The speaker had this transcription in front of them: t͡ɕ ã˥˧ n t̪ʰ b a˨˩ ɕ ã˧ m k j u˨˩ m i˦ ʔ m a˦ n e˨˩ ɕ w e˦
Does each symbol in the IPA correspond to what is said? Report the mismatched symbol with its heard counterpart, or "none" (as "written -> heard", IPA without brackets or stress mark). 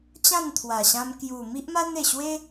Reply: b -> w